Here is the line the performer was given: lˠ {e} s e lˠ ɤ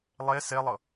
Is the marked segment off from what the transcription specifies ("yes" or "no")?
no